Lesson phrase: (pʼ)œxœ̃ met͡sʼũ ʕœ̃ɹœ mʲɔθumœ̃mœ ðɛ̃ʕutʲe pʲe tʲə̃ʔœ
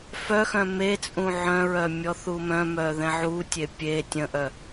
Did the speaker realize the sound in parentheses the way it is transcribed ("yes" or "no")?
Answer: no